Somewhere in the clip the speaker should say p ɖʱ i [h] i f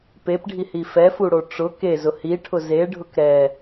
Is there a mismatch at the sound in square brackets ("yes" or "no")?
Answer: no